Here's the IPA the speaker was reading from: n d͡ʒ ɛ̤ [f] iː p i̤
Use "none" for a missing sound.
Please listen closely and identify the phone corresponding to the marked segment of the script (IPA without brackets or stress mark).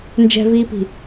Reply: v